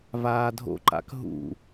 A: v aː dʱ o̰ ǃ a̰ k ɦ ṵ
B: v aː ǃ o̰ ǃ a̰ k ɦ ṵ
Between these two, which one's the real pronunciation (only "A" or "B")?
A